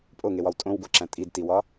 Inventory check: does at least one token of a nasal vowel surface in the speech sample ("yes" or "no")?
yes